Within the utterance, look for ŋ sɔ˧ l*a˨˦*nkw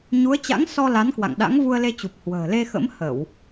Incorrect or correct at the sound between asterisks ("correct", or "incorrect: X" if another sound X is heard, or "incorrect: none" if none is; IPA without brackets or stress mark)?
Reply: correct